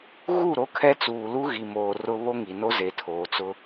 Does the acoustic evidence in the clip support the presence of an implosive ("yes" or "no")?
no